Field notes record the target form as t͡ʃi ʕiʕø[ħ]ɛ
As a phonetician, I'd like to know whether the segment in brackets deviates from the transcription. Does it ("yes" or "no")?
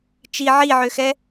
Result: yes